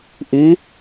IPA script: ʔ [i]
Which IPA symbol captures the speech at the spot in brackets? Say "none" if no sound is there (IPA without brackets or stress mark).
i